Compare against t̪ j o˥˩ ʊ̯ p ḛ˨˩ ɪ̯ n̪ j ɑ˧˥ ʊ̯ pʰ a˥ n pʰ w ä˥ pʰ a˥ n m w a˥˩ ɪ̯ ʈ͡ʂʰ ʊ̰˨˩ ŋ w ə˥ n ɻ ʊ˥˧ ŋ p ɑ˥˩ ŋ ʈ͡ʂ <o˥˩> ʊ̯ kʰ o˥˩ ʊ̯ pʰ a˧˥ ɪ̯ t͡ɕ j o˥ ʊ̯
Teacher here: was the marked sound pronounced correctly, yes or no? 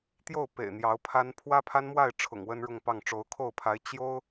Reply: no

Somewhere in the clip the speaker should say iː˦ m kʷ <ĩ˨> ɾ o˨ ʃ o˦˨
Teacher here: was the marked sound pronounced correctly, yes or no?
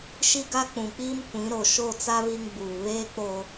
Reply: no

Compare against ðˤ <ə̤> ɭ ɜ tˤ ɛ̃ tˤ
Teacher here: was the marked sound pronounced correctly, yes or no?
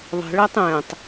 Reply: yes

